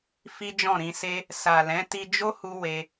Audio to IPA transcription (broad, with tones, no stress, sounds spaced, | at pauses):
f i˦ d͡ʒ ɔ̃˦˨ ɾ ĩ˧ s e˦ | s a˨ l ɛ̃˨˦ t i˧ d͡ʒ o˦ h u˧ w e˧